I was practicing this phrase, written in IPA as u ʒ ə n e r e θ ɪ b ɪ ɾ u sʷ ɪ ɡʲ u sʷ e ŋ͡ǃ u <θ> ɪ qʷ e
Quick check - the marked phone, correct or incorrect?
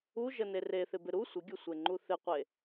correct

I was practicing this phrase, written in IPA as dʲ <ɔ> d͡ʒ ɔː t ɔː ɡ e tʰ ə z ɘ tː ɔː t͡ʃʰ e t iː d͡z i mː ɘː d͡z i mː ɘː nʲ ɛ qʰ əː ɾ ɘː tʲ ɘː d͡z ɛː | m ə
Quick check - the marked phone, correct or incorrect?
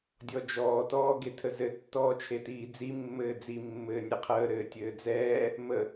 correct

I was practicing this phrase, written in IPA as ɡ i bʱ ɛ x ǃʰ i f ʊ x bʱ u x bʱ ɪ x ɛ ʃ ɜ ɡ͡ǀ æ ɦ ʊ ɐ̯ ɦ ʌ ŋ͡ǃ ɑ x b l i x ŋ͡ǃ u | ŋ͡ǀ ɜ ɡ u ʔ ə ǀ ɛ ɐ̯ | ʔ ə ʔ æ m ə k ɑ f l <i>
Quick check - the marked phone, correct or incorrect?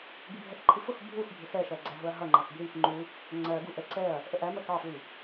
correct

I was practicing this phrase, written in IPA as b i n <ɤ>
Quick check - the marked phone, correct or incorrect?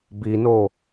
incorrect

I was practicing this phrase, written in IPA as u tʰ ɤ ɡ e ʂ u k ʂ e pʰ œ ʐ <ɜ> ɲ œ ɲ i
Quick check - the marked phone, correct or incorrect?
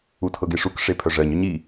correct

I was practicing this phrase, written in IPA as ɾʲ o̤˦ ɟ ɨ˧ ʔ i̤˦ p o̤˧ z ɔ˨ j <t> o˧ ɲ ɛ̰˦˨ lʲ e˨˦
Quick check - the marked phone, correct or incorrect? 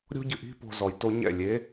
correct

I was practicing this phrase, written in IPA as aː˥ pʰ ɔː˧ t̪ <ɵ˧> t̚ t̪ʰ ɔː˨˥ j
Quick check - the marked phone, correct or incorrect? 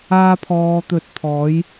correct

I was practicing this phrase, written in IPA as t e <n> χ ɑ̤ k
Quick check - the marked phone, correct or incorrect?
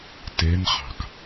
correct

